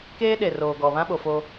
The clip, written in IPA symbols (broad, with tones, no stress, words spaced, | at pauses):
keː˦ɗe˨roː˨ ɡɔ˨ βã˦ɓo˨fo˦